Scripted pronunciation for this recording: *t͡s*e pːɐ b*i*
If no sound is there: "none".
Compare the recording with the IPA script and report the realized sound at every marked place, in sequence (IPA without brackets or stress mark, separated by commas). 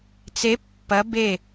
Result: t͡s, e